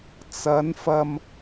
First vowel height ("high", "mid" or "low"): low